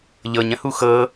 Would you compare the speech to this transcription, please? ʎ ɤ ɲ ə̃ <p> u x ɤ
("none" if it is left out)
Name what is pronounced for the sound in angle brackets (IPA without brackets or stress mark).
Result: h